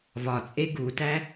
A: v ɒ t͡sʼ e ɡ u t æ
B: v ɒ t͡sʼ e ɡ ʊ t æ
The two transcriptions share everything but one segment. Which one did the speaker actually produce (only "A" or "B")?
A